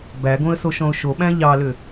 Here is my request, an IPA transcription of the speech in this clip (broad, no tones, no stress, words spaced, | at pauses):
bæɡõə̯ soʃɔ̃ʊ̯ʃoɓæ̃ ʎɑlʏ